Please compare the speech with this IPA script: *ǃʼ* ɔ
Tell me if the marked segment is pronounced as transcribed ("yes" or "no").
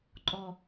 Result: yes